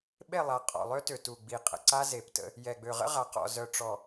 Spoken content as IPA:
ɓe˦˨lˠa˨˦ qʼɔ̰˨ lˠø˦tø˨ tu˨ɡ͡bi˨qʼə̰˨ǀa˦ ze˨ptə̰˦ | jɛ˨ɡ͡bø˨ʁə̰˦ʁa˨ qɔ̰˨ zœ˨ʈ͡ʂɔ˨

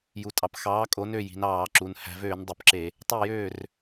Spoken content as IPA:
ju˩tʼɑ˩p xɑː˨˥kʼo˨˥nø˥˩ ji̤˩˧nɑː˧˩˧ǁu˩˧n hæ̤˩˧vøː˧˩˧ndˤu˩pǁe˧˩˧ | tˤe˥˩jøː˥˩r

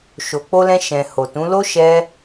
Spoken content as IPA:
ʃo˨ k͡po˧lɛ̃˧ ʃɛ̃˨ ho˨tũ˨˦lo˦ ʃɛ˦

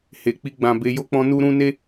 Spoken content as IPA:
he˨k͡pi˧ ɡ͡bã˨ be˧jo˦k͡pɔ̃˦ nu˦ɾũ˦ ne˦

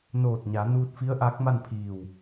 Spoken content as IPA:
noː˧˩t̚ɲa˩˧nuː˧t̚fi˧˥ə̯ ʔa˧˥k̚ma˥˨npʰiː˧˩w

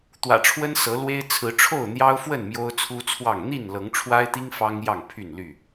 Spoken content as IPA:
t̪wä̰˨˩ʈ͡ʂʰwə˦nsɤ˨˦lwe˦ɪ̯ t͡sʰɹ̩˨˦ ʈ͡ʂʰo˥˨ʊ̯n̪jɑ˦ʊ̯fwə˥˨n mjo˦ʊ̯t͡sʰu˦t͡sʰwɑ˥˨ŋ n̪i˥˨nlɤ˨˦ŋʈ͡ʂʰwa˦ɪ̯t̪i˦ŋ fɑ˦ŋ jɑ˥˨ŋpʰy˥˨nly˥˨

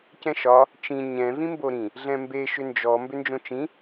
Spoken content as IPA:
cɛ̃ʃɒ | t͡ʃĩ ɲɛ̃ vĩmboɾĩ | ɮɛ̃mbe ʃʏnd͡ʒɔ mbʏnd͡ʒõt͡ʃĩ

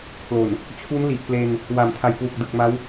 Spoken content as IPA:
kʰlo˨˩n | t͡ɕʰu˦˥nli˨˩ʔple˧n | wa˨˩mtʰa˨˩jkwu˨˩k̚ dɯ˨˩k̚ma˦˥w

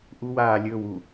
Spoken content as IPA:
ʔu waː lʲɵːw u

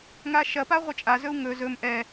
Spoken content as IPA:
ŋaʃɐ paʁʷɐt͡ʃʼazɵu̯ ŋɵ zɵm ʔɛ

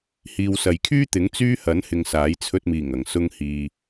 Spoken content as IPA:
hiː˨wsɐ˨jkʰyː˥t̪ɪ˨˥ŋ t͡syː˥hɐ˨˥n hɪ˧ŋsaː˨˥j t͡sʰɵ˧t̚miː˨˩ŋ ɐ˨˩ŋsʊ˧ŋhiː˨

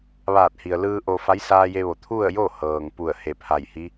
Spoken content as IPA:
ʋaː˧˩t̚hi˩ə̯lɯː˧ ʔo˧ fa˧˥jsaː˧je˧ʋo˩ t̪ʰu˥˨ə̯jo˥˨ hɤː˩ŋpu˧˩ə̯ he˧˩pʰa˧˩jhi˧˥

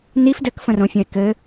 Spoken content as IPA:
nif dɘkfə̃rõfʲə̃e̯ kɘ

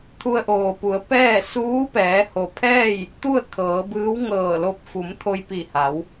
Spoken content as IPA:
t̪ʰu˧ə̯ʔoː˩pu˩˧ə̯ pɛː˥˨ suː˧˥pɛː˩˧ho˩pʰɛː˥˨j | t̪u˥˨ə̯ kʰɤː˩˧bɯː˧˥w ŋɤː˧˩lo˧p̚ fu˩˧mt̪ʰo˧j pi˧˩ha˩˧w

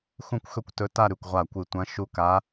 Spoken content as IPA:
xũ˥˧kʷxɵ˥˧kʷtɵ˧˥ ta˥˧ ɾʉ˧˩kʷʁʷa˧˩ kʷɨ˧˩tʷɐ̃˧˥ ʃu˧˥ka˧˥

